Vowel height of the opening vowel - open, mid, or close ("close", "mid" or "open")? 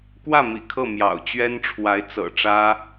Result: open